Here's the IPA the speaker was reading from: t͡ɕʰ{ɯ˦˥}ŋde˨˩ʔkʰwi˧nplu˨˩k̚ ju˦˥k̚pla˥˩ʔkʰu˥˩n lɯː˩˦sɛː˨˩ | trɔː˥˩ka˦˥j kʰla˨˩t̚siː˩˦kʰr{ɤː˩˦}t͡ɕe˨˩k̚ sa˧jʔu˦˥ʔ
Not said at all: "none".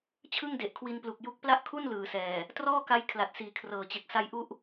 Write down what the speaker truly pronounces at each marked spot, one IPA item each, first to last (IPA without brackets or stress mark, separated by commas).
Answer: ɯ˥˩, ɤː˩˦